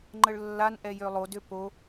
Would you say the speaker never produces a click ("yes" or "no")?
no